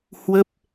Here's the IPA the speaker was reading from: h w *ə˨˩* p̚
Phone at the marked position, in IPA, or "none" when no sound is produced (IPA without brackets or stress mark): ə˦˥